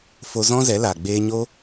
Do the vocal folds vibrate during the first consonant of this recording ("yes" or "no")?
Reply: no